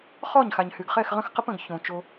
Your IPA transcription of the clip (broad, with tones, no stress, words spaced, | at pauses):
χɔ˦˨ɲxa˨ɲhy˨ɡ χɛ˦˨xʁə̃˦xqə˦p ə̃˨ɡ çõ˨ t͡ʃo˦